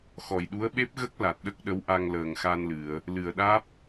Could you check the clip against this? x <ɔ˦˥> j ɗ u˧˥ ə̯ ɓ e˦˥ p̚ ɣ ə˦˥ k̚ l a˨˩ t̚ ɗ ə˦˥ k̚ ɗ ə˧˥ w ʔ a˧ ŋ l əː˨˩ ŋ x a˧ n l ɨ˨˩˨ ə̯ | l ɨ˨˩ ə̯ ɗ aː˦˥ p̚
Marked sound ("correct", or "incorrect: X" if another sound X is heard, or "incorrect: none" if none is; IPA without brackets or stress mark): incorrect: ɔ˨˩